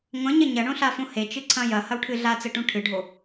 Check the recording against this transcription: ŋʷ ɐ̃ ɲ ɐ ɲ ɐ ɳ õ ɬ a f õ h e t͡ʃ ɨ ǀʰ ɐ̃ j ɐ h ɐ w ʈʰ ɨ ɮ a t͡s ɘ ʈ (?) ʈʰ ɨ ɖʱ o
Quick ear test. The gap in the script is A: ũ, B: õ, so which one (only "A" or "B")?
A